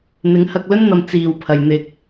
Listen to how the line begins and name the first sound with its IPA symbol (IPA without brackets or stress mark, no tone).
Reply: n̪